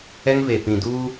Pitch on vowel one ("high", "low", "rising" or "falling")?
high